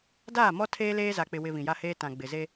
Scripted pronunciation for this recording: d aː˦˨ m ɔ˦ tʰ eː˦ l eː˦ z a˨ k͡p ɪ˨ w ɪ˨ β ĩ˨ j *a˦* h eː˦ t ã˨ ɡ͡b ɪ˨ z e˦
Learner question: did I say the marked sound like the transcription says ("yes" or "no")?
yes